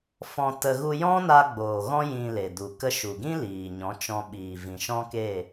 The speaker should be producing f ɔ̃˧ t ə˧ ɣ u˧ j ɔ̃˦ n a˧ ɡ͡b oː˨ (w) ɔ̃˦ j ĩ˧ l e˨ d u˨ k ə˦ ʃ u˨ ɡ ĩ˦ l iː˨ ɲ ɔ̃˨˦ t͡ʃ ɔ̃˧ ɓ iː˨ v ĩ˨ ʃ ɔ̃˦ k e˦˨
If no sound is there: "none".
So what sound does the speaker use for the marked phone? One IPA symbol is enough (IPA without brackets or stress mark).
ɣ